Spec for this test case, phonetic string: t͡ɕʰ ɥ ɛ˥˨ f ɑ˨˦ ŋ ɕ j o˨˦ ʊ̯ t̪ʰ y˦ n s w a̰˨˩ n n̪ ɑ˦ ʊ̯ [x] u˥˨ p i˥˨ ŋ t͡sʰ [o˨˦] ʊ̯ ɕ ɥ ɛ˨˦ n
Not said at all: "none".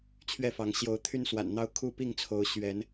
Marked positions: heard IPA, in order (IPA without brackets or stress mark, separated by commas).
kʰ, o˨˦